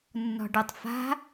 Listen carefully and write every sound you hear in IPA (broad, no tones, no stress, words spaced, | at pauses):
nːɔ̤ɖʌtˤ fa̤